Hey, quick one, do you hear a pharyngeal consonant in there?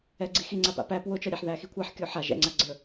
yes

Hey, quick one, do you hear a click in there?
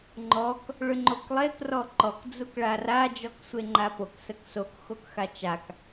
yes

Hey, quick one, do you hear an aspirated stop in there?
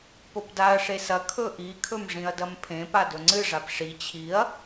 yes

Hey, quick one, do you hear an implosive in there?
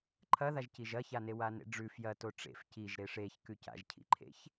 no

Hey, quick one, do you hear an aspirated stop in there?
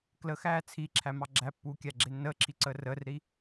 yes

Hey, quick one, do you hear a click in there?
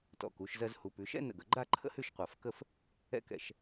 yes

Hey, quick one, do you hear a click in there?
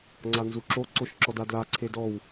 yes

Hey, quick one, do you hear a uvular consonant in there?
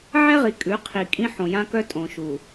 yes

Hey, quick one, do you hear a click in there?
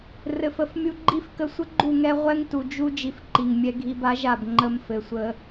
yes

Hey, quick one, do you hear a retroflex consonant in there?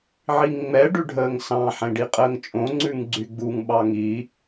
yes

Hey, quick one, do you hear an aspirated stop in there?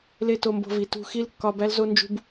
no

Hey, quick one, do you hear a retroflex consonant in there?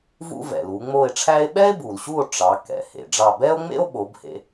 yes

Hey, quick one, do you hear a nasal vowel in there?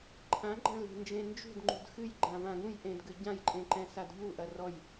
yes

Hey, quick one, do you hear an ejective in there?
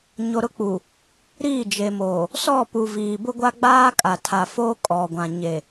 yes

